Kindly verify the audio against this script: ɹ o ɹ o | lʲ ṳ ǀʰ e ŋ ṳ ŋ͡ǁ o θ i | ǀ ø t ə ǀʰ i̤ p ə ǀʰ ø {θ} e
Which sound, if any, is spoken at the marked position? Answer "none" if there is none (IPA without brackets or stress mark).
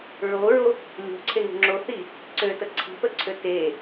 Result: t